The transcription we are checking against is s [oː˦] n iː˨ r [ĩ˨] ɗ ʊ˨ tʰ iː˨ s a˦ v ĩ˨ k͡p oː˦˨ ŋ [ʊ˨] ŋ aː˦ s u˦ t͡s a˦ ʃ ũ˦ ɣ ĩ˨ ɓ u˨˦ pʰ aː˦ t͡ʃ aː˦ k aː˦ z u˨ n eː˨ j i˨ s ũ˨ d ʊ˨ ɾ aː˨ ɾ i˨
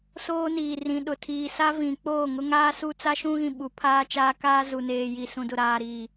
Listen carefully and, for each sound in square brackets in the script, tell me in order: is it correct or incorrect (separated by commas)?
correct, correct, incorrect